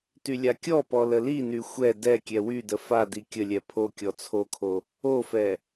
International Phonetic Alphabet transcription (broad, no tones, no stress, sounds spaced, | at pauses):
t y lʲ a kʲ ɔ p ɔ l ə l i n y xʷ ɛ d ɛ kʲ ɛ w y d ə f a d i kʲ ə lʲ ɛ pʰ o kʲ ɔ t͡sʰ o kʰ o | o f ɛ